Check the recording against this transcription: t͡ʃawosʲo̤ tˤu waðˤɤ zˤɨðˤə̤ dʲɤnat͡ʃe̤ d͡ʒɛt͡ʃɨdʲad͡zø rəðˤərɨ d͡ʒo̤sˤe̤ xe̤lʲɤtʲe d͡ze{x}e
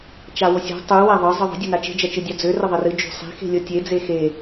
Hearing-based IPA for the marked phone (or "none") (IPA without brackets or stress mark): x